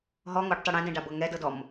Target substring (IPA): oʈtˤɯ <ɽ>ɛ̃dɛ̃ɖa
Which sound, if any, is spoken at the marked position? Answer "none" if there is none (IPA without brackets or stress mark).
ɽ